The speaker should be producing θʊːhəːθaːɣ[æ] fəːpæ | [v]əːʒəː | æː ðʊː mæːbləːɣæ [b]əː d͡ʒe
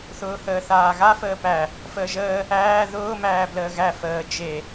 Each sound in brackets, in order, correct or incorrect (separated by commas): incorrect, incorrect, incorrect